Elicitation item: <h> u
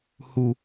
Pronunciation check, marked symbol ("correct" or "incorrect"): correct